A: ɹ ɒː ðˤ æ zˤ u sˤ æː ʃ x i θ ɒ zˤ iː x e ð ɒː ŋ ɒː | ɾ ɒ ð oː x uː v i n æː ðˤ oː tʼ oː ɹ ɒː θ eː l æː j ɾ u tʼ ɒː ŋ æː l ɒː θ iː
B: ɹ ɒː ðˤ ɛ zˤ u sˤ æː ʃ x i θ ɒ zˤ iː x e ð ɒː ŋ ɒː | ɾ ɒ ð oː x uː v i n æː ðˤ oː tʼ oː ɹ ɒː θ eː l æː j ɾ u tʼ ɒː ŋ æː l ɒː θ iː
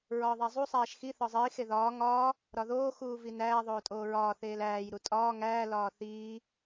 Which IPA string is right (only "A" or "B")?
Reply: A